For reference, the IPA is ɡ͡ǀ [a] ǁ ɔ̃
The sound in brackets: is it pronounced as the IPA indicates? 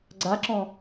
yes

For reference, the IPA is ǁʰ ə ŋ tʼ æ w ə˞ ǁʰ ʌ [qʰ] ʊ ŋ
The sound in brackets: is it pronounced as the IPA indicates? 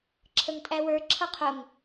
yes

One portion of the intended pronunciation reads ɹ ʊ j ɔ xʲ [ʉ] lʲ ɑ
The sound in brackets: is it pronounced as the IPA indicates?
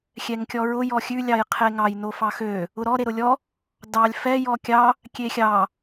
yes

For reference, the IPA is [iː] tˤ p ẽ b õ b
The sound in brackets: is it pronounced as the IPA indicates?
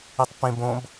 no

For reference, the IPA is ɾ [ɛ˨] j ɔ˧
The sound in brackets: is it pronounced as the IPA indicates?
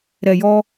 yes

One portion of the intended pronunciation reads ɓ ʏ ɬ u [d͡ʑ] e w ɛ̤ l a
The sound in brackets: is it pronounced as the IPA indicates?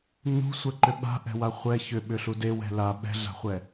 no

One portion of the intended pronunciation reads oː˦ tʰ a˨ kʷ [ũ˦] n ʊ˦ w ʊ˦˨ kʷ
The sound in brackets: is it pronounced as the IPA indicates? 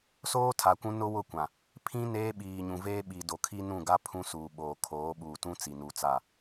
yes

